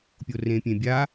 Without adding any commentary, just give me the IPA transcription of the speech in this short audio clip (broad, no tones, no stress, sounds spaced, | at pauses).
pʲ o r ẽ pʲ ẽ bʲ a